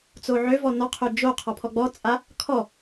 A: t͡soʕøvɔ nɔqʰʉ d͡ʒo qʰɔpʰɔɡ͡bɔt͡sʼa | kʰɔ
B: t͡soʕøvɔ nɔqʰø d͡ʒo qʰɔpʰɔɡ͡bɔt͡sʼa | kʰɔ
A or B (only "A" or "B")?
B